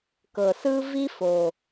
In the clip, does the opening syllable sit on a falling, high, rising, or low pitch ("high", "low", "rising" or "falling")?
low